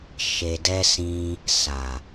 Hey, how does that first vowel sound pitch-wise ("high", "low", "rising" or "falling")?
low